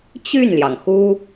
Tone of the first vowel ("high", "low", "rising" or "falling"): falling